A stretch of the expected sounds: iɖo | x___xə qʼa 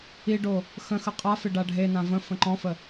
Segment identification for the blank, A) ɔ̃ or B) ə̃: B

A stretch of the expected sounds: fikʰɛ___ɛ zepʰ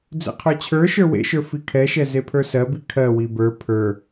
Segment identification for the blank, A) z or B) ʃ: B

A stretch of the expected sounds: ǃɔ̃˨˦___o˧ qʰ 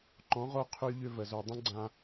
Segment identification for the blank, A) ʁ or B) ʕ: A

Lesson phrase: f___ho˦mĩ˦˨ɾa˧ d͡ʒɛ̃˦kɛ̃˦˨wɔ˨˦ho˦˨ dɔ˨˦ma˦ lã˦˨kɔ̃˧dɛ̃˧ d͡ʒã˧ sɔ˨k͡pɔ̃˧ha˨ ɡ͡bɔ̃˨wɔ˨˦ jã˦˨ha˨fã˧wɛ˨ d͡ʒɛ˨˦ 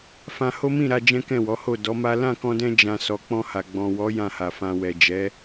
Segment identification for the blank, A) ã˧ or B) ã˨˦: A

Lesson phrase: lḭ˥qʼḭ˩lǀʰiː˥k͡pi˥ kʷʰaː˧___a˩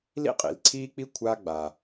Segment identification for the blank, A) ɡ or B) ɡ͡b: B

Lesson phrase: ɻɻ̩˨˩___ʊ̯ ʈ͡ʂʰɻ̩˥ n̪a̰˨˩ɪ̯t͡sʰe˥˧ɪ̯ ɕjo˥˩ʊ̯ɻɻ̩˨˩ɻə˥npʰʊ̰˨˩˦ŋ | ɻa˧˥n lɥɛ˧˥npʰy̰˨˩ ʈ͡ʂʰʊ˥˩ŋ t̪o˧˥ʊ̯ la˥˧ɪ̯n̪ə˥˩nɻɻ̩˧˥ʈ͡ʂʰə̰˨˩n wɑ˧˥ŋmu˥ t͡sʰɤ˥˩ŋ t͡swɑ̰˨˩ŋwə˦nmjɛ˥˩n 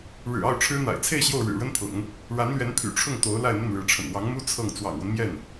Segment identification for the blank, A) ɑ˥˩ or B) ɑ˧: A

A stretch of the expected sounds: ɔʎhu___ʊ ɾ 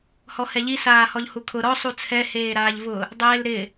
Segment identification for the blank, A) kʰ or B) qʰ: A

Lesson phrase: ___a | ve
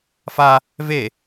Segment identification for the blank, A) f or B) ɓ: A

